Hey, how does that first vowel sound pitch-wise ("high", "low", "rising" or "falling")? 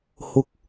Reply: rising